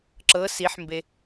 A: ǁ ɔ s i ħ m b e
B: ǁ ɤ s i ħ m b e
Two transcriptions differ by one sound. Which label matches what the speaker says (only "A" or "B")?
B